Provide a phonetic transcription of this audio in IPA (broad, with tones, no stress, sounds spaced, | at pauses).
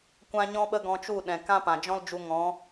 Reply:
kʷ ã˦ ɲ ɔ̃˦ ɓ ə˦ ɡ ɔ̃˧ t͡ʃ u˦˨ ɗ ɛ̃˨ k ã˦ p ã˨ d͡ʒ ɔ̃˦ l d͡ʒ u˧ ŋ ɔ̃˨˦